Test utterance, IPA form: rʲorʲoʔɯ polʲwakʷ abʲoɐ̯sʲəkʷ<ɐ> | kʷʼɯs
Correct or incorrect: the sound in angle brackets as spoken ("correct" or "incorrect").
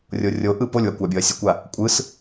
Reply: incorrect